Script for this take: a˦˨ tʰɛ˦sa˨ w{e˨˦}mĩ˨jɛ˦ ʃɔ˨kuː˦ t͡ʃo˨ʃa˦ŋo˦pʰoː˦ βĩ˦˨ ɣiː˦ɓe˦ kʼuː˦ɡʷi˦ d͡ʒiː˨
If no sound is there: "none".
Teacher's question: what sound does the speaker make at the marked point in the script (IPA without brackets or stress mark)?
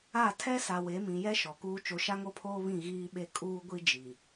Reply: e˨˦